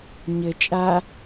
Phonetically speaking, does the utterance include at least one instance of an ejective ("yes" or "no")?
yes